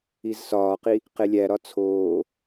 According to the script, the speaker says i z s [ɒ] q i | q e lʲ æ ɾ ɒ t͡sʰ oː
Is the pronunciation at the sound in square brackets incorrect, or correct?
incorrect